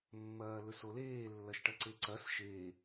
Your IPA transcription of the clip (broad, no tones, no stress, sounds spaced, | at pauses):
mː ɐː l ɵ s o l eː lː ɐ ʃ ʈ ɐ ǀ e ǀ ɐ s ʃ e